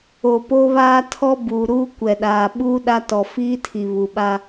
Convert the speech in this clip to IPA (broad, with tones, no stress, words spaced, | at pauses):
o˨ po˦βaː˦ tʰɔ˦ buː˨ɾuː˦ kʷɛ˨ɗaː˨ ɓuː˦ɗa˦ tɔ˨ fiː˦tʰi˨ βu˨ɓa˦